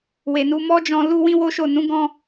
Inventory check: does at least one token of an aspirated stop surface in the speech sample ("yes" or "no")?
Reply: no